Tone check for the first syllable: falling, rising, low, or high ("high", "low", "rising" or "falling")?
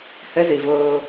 high